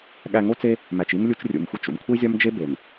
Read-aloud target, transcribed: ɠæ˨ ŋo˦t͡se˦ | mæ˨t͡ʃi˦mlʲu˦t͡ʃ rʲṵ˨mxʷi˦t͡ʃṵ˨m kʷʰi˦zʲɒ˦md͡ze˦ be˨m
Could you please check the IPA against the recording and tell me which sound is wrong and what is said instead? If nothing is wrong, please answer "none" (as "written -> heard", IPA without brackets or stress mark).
d͡z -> d͡ʒ